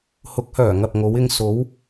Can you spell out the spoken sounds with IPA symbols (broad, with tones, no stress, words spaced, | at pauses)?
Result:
hʊ˨˥k̚hœː˨˩ ŋɐ˨p̚ŋo˨˧wɪ˧ŋ so˨˧w